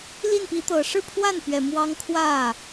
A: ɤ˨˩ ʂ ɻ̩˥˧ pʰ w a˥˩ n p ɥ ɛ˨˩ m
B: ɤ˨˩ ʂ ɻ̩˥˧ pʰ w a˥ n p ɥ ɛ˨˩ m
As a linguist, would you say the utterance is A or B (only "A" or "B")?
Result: A